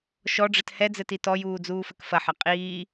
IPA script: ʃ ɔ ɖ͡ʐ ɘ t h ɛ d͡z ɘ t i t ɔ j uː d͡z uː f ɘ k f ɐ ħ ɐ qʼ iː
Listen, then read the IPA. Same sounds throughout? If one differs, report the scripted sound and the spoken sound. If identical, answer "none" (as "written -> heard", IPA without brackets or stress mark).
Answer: none